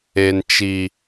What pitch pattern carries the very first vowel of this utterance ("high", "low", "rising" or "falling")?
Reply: high